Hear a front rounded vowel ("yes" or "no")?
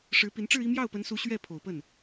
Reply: no